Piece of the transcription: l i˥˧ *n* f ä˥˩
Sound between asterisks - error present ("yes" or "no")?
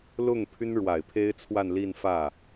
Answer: no